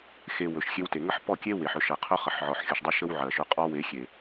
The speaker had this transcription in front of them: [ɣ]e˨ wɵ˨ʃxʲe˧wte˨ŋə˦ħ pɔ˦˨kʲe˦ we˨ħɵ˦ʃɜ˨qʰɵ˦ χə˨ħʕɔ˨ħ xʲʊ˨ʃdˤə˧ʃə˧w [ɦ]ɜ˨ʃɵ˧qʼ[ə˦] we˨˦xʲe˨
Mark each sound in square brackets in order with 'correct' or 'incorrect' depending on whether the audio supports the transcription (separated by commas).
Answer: incorrect, incorrect, incorrect